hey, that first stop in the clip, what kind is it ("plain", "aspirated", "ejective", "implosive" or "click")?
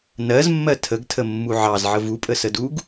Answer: aspirated